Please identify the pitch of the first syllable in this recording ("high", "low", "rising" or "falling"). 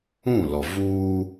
falling